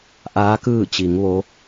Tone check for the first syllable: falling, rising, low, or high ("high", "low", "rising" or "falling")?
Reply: rising